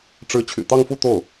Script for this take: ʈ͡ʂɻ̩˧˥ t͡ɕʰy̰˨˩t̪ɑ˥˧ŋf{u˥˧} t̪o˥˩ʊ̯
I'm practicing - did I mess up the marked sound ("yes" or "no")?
no